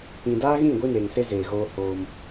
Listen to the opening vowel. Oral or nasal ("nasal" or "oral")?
nasal